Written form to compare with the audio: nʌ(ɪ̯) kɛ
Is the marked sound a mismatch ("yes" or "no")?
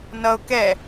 yes